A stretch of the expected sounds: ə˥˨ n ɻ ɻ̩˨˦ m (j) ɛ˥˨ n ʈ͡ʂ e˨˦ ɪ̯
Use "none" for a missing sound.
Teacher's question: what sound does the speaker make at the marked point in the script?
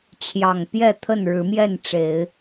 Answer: j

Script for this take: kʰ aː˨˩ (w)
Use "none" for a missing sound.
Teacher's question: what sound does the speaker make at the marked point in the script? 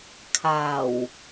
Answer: w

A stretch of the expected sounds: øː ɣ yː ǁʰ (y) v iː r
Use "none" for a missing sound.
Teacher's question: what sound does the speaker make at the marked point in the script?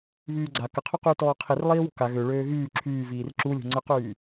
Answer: yː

